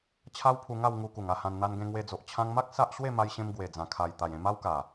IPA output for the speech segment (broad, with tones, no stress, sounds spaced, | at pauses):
t͡ɕʰ a˦ w pʰ u˧ ŋ a˥˧ w ŋ u˧ k u˨˩ ŋ a˥˧ h ã˧ n n̪ a˧ n ɡ ẽ˧ ŋ w e˧ d͡z o˨ ʔ t͡ɕʰ ã˧ ŋ m a˦ k̚ s a˦ ʔ ɕ w e˥˧ m a˧ j ɕ ẽ˧ m ɡ w e˨˩ d͡z ã˨˩ kʰ a˨˩ j t̪ a˨˩ j ẽ˧ m a˦ w k a˨˩